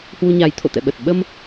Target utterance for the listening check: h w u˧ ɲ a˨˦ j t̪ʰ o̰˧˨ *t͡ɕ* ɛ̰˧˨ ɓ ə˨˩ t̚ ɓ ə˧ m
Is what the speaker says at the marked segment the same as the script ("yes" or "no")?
no